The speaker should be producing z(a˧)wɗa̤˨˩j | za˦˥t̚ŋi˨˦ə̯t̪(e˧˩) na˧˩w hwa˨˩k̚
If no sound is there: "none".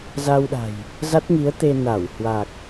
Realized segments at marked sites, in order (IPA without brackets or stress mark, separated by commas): a˧, e˧